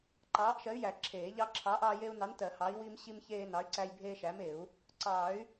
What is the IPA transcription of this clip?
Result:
ǃɑː˨˥ʔʃɜ˨˥y̯jæ˨˩˦ ǁʰeː˨˩˦ʎɑ˦ ǁʰɑ˨˥ʔɑː˦je˦u̯nɑ˨˥n tɜ˨˩˦ hɑ˨˥i̯wi˦mɕi˦m çeː˦nɑ˨˥y̯ǀæ˦j bʱeː˦ʃæ˨˥me˨˩˦u̯ | ǀɑ˨˩˦y̯

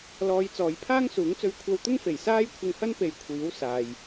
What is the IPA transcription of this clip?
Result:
lɔː˨˧j t͡sɔː˨˧jpʰaː˥ŋsuː˨˥ŋt͡sɵ˧ɥ kʷʰɐ˧wt̪ʊ˥ŋfe˨˩j saː˥jkʷʰɪ˧ŋhɐ˥n pe˨˧jkʷʰiː˨˥w saː˨j

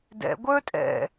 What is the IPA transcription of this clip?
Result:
dɛ̰ ɡʷə˞ tʼɛ̰

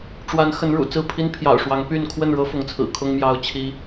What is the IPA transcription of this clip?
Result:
ʈ͡ʂwa˨˦n xə˨˦nɻṵ˨˩ t͡sɹ̩˥˨pʰi˦n pʰjɑ̰˨˩ʊ̯ʂwɑ˨˦ŋ py˥˨n kʰwə˥˨nɻɤ˦fʊ˨˦ŋt͡sʰɹ̩˨˩ kʰʊ˦ŋmjɑ˦ʊ̯t͡ɕʰi˦

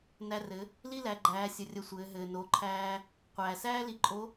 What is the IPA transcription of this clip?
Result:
næ˧rɘ˩˧ | li˥læ˩˧ɡ͡ǃæː˩˧sʲə˩ rʲə˧sʷɘː˩˧ ɦɘː˩no˩˧ǃʰæː˧ | qʷæː˩sæː˥ li˧ǃʼo˧˥

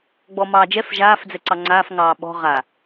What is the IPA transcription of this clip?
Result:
ɡ͡bɔmɑːd͡ʒɛf ʒaːf d͡zɛǀɑŋ͡ǀaːf ŋɑːɓɔ̤ ʁa

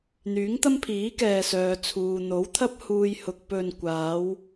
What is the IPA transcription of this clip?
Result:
n̪yː˨˥ŋ t̪ɐ˥mpʰiː˨˥kɛː˨ sœː˧t͡sʰuː˧ n̪o˨˥wt̪ʰɐ˥p̚huː˧j hʊ˨k̚ pɵ˨nkʷaː˨˧w

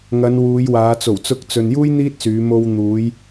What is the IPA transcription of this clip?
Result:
ŋɐ˨˧n wuː˨˧jwaː˨˧ t͡so˨˩wt͡sʊ˧k̚t͡sɵ˨njuː˥j n̪iː˥t̚syː˨˧ mo˧wn̪uː˨˧j

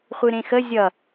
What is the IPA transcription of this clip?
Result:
χʷɨɾẽxə zʲʌ

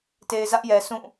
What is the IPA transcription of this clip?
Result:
te˨ɪ̯zä˦ʔjɛ˨sũ˦˨

